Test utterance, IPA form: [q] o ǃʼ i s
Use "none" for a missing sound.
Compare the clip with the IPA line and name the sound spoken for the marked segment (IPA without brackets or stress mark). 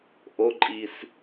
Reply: ʔ